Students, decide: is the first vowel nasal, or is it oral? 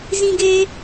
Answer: nasal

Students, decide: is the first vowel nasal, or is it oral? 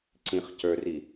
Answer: nasal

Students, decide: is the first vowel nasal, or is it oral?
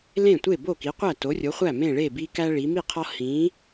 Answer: nasal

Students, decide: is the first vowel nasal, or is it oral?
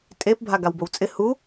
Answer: oral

